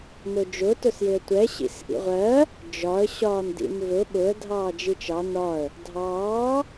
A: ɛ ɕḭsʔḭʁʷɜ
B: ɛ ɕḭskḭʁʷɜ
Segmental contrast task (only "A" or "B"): A